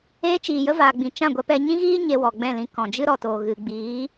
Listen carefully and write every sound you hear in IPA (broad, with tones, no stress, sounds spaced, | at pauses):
eː˦ t͡ʃ iː˨ j ə˦ v aː˨ ɡ͡b ĩ˨ t͡ʃ ã˦˨ ɡʷ ɛ˧ p ɛ˧ ɲ ĩ˦ ɣ iː˦ ɲ e˧ w ɔ˨ ɡ͡b ɛ̃˦˨ l ĩ˧ k ɔ̃˨ d͡ʒ ɨ˦ ɾ ɔ˨ t oː˨ ɣ ɨ˨ ɡ͡b iː˨˦